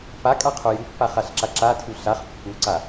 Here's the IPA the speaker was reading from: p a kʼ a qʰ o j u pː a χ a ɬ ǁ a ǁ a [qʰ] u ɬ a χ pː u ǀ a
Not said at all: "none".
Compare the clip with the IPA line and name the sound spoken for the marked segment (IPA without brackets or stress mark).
tʰ